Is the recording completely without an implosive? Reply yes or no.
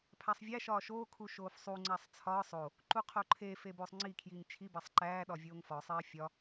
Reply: no